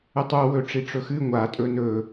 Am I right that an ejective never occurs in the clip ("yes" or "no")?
no